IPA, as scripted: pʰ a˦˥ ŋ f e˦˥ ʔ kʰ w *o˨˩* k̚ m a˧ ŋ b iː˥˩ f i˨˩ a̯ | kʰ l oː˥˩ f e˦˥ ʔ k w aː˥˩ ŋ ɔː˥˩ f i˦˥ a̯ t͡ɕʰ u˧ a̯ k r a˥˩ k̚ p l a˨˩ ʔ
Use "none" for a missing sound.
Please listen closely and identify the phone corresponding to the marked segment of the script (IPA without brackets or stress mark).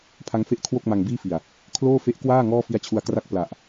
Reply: o˥˩